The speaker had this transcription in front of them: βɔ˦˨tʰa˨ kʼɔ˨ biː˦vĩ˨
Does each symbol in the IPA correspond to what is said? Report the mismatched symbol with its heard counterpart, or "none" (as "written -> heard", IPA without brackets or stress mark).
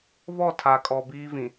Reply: none